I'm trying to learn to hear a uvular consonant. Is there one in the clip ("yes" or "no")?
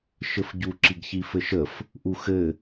no